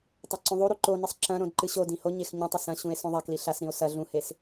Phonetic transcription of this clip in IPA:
tˤaǀũðˤuɾu ǃonɨsˤ ǁɐ̃ ɾõdǃɨɕodĩ hoɲex ɲũtˤɐ sɐ̃ɕũe̯ sõðˤakli ɬasɾĩo̯ sɐ ɮũhes

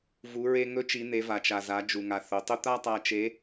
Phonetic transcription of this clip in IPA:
vu˩˧ɹe˧ ŋɵ˧˥t͡ʃi˩˧n̪e˩˧ va˩t͡ʃa˩ za˩˧ d͡ʒu˩ŋa˩ θo˩˧tˤɵ˥ t̪a˥tˤa˧ t͡ʃe˧˥

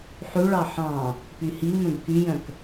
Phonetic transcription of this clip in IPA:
ħʉɭɑ ħɑ̃ | pyhimœ̃b kyjœ̃k

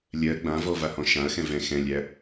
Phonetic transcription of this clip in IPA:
lʲɜ ɡ͡bãvɔvahɔ̃ ʃãɐ̯xɛ̃ vɛ̃ xɛ̃lʲæ

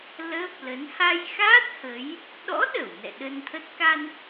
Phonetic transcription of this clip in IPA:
lə˦˥p̚lə˨˦n ha˧jxa˦˥t̚ hə˨˦j | ɗɔ̰˧˥ɗə˧˩w nɛ̰˧˨ɗə˧nt̪ʰə˦˥t̚ ka˧n

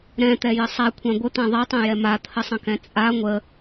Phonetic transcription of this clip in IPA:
ɾɛ̃t̪ɛjə sˤakʷʰã ɡʷət̪ã ðˤɛtˤɛ̃jɛ mat̪ʰəsˤə̃kɛ̃ t͡sʼa ŋʷə

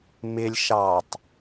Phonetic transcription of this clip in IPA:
mɪlʲ ʃɑtˤ

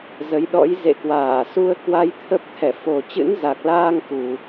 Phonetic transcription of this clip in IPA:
zə˨˦j ɗɔ̰˧˥jzḛ˧˨kwaː˧˩ su˧ə̯kwa˧j t̪ʰə˦˥p̚t̪ʰɛ˧˩ fo˨˩t͡ɕɨ̰˧˥nza˨˩k̚laː˧ŋ ku˨˩

